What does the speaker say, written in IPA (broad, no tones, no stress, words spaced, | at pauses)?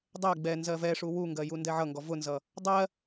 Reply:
dˤɛ ɡ͡bɛ nzɜvɛʂu wuŋɡɜ jundɛʕʌŋɡɔ vʊnzʌ | dˤɜ